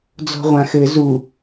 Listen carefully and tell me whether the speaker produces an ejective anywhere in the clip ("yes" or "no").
no